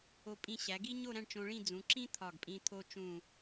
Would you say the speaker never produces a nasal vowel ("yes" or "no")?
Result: no